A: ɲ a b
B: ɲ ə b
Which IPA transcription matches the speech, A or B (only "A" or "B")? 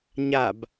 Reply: A